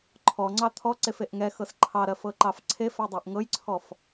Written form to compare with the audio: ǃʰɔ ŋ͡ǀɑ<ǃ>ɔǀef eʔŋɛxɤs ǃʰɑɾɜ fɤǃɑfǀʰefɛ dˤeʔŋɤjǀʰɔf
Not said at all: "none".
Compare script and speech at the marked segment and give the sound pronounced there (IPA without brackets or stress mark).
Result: t̪ʰ